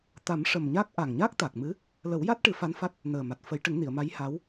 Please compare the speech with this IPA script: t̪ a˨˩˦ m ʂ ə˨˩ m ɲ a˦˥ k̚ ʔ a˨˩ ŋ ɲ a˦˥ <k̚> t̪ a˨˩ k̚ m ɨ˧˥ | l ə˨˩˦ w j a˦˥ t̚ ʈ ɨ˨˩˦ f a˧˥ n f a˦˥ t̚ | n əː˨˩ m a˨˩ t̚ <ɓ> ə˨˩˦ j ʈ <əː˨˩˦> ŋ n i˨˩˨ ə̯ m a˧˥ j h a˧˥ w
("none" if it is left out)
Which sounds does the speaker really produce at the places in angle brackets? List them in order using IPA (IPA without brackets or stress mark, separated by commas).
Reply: k̚, f, ə˨˩˦